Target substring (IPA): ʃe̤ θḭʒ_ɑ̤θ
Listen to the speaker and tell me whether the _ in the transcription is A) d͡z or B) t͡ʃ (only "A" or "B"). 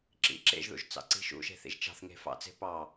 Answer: B